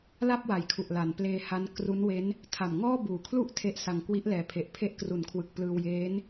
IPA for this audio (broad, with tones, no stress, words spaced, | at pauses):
la˥˩p̚wa˩˦jkʰu˨˩ʔ la˩˦npleː˧ha˦˥n kru˦˥nwe˦˥n | tʰa˨˩mŋɔː˥˩buː˨˩kʰlu˥˩ʔ tʰe˦˥ʔsa˧ŋ kwi˦˥ʔlɛː˨˩ pʰe˨˩ʔpʰe˦˥ʔ kru˩˦nkʰwɯ˨˩k̚ plɯː˧wjeː˦˥n